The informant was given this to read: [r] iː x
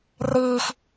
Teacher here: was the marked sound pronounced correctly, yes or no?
yes